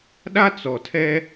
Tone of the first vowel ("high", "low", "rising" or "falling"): high